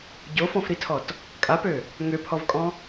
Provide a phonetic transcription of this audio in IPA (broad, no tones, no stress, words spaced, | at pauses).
ɟofɔ̃fɾitʰɔt | kʼapø | ŋøpʰɔvkʼɔ̃